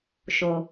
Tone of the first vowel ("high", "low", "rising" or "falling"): low